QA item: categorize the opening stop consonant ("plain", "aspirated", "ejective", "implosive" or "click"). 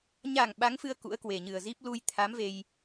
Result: implosive